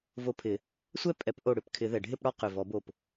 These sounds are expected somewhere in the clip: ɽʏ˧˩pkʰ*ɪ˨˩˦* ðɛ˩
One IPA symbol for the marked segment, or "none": ɪ˨˩˦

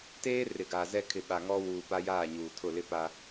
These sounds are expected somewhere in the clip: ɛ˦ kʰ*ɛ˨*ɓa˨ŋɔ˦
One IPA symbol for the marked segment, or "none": ɪ˨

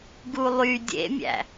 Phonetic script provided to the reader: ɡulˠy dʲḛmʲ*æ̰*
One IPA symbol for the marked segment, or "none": æ̰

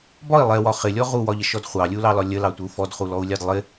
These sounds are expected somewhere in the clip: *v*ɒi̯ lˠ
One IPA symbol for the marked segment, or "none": b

